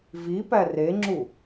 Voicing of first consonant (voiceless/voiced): voiced